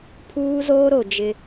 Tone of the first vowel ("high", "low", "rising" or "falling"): high